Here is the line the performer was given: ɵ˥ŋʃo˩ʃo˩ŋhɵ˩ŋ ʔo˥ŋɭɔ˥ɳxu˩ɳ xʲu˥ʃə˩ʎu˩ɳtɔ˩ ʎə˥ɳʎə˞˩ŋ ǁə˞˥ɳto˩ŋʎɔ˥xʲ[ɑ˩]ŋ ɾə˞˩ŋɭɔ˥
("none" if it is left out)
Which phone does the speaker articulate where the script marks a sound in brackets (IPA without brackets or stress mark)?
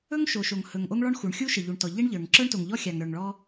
a˩